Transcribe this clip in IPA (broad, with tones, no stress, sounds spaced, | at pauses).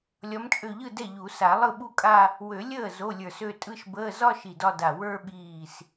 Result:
lʲ ɒ˨˦ m t͡ʃʼ ø˧˩ ʎ ɯ˥˩ d ɛ˥˩ ʎ u˨˩˦ s a˨˩˦ lˠ ɯ˥˩ ɓ u˥˧ kʼ a˥˧ | w ø˨˩˦ lʲ əː˥˩ z o˧˥˧ lʲ ə˞˧˩ s ø˥˧ tʼ ɯ˥˧ ʃ b əː˧˥˧ z ɒ˥˧ ʃ i˧˩ d ɒ˥˧ d a˧˩ w ə˞˥˧ ɓ iː˧˩ s